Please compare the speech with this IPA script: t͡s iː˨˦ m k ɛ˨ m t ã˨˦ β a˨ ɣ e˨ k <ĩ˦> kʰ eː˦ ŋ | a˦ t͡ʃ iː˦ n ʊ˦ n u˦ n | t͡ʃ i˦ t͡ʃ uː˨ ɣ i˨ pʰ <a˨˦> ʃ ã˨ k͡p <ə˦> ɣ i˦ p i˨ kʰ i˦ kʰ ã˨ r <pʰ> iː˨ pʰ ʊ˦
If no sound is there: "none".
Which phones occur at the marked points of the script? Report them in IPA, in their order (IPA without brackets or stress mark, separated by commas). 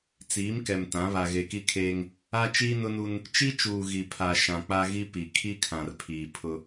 i˦, a˨, a˦, pʰ